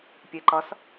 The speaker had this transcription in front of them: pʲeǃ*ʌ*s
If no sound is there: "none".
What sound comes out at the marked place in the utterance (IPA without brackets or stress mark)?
ʌ